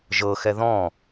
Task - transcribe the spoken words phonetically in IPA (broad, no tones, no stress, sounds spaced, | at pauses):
ʒ ɤ x ɛ ð ɔ̃